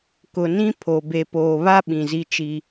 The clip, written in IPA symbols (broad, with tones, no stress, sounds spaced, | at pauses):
k ʊ˨ n ĩ˦ pʰ o˨ b e˨ p oː˨ β a˦ ɓ ĩ˨ z i˦ t͡ʃ i˦